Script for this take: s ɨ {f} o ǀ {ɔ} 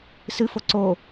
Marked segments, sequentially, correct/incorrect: correct, incorrect

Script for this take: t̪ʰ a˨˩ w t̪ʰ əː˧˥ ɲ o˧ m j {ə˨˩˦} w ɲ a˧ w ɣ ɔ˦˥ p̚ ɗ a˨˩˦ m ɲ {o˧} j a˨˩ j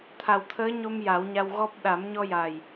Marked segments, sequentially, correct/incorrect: incorrect, incorrect

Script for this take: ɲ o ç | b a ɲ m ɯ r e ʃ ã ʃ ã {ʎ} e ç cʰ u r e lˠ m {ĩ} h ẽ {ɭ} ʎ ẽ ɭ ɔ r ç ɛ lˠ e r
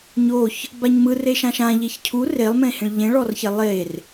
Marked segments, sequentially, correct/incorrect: correct, incorrect, correct

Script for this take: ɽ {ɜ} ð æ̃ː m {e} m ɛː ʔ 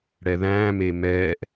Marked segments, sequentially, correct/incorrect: incorrect, correct

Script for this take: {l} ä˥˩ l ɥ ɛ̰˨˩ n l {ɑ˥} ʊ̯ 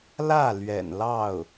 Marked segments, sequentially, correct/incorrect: correct, incorrect

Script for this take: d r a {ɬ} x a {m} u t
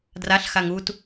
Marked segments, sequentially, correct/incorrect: correct, incorrect

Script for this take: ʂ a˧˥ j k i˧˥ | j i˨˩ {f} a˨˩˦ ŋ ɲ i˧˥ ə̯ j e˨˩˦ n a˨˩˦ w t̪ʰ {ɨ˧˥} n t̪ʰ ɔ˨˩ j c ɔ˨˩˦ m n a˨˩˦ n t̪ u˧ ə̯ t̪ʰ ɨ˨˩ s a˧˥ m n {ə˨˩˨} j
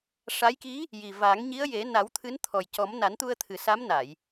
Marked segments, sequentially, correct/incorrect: incorrect, correct, incorrect

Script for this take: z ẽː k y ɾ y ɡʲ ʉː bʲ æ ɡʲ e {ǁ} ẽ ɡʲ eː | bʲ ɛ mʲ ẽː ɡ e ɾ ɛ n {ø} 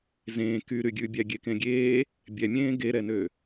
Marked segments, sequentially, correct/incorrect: incorrect, correct

